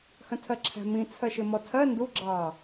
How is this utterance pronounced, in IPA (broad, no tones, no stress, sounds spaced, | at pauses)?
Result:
h ə̃ tʰ ɜ ǁʰ æ̤ m ĩ t͡sʰ ɜ ʃ ɪ m ɔ tʰ ɜ n d u ɡ͡ǁ ɑ